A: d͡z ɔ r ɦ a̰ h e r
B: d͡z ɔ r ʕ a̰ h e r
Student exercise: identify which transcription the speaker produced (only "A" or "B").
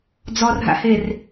A